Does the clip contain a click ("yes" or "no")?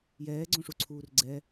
yes